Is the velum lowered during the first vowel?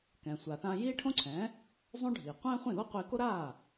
yes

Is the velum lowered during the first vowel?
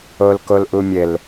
no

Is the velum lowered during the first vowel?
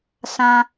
yes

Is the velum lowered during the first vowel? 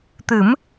no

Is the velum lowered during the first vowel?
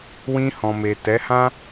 yes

